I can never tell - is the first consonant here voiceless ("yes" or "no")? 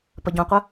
yes